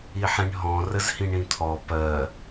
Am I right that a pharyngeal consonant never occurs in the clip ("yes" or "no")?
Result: no